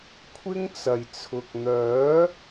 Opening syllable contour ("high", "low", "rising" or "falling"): high